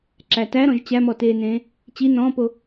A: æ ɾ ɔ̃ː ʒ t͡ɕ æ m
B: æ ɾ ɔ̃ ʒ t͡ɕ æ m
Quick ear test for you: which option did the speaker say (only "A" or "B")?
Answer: B